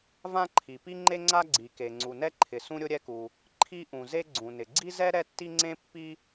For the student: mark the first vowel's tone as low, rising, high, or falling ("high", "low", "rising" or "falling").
high